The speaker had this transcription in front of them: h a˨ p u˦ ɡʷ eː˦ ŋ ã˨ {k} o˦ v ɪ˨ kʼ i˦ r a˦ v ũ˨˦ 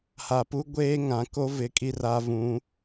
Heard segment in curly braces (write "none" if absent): k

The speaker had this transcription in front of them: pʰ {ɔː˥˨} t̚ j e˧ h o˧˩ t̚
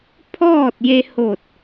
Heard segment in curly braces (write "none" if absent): ɔː˥˨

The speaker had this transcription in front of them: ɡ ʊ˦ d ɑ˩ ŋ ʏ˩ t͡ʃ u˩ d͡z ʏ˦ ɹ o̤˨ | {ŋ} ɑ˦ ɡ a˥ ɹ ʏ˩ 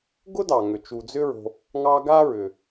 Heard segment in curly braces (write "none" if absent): ŋ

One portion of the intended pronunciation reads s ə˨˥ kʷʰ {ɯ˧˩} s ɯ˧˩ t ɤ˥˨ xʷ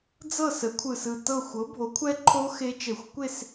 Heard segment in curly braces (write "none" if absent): ɯ˧˩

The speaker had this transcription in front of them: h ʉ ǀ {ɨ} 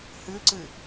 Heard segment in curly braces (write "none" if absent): ɨ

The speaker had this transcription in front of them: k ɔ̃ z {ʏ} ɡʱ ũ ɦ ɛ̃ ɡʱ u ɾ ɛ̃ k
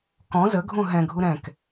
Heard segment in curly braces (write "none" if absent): ə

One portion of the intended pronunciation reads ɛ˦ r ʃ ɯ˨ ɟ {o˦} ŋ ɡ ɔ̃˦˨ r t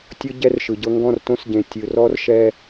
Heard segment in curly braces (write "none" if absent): ɤ˦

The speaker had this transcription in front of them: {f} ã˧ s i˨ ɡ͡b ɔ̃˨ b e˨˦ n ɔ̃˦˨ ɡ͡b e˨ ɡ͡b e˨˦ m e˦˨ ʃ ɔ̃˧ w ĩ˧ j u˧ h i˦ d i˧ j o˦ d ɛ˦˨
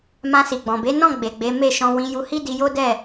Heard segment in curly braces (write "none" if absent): m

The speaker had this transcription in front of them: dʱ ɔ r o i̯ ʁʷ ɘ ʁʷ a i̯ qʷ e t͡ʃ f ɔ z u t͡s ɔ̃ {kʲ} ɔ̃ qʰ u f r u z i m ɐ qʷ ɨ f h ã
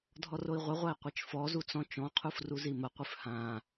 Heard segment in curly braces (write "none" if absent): t͡ʃ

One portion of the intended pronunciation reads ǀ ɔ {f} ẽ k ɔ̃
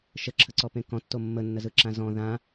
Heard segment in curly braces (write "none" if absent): p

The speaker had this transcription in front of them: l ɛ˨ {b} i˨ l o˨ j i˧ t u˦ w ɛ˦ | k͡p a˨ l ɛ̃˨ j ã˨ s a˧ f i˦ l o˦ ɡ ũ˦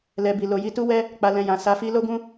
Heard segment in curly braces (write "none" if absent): b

